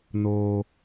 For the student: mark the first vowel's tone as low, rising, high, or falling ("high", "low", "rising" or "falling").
low